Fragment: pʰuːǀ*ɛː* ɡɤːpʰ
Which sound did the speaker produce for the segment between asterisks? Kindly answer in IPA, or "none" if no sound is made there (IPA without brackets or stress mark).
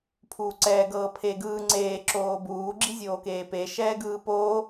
ɛː